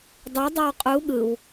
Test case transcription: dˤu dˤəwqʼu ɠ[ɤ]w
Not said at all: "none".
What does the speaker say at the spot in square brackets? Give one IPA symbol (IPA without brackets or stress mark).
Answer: ɯ